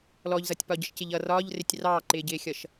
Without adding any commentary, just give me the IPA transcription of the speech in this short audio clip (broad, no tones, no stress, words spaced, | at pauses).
lɔʎzʌtʲ pɒɟəʃcɪʎʌ rɒːʎrɪtʲ rɑːǃɪːɟɪːxʲʌʃ